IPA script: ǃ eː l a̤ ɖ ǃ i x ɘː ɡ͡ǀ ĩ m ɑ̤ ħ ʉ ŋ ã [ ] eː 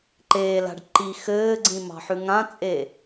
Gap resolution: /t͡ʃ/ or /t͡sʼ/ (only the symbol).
t͡sʼ